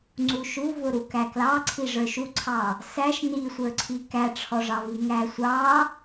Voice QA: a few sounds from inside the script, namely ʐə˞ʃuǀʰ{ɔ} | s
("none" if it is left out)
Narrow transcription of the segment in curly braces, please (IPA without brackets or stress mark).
ɑ